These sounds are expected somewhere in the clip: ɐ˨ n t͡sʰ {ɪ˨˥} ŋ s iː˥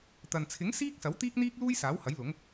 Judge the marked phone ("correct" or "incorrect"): correct